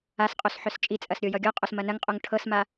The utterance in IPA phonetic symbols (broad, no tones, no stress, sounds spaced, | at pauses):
a s qʼ o s ħ œ s t͡ʃʼ i t͡sʼ ɐ s ɾʲ o j ʌ ɡʲ ɔ qʼ o s m ɐ n ɐ ŋ qʼ o ŋ ʈʰ ɤ s m a